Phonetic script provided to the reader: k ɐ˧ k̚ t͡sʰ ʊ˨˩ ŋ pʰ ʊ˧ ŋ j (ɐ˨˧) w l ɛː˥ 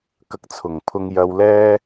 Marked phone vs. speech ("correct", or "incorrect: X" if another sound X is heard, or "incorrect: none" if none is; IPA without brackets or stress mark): incorrect: ɐ˧